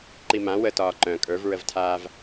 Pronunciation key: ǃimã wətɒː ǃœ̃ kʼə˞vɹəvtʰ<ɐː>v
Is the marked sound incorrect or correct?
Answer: incorrect